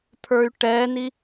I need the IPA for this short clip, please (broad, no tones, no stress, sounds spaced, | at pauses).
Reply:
t̪ʰ ə˞ y̯ ʈ ɛ n i